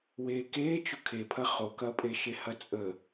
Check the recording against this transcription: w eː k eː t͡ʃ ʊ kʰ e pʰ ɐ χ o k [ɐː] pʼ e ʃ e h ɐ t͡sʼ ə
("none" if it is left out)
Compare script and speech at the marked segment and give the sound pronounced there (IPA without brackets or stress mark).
ɐː